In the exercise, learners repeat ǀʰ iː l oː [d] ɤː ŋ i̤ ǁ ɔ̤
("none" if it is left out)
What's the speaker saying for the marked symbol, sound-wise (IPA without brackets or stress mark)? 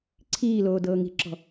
d